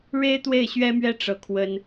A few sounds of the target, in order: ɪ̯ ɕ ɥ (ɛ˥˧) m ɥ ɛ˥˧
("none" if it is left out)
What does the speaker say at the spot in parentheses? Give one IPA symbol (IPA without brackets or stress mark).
ɛ˥